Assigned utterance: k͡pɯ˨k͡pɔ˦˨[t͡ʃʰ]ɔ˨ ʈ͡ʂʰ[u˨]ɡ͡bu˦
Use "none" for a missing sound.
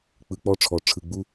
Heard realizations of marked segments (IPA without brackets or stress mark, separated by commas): ʈ͡ʂʰ, ɯ˨